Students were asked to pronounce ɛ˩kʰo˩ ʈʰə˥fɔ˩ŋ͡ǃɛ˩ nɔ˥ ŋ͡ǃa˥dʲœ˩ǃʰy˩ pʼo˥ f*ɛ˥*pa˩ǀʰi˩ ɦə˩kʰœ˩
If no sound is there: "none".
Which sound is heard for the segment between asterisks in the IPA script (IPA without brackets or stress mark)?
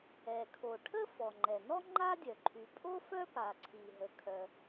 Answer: œ˥